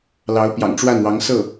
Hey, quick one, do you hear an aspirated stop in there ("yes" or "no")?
no